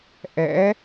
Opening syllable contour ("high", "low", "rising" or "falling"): rising